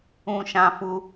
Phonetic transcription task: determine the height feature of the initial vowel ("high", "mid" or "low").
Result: high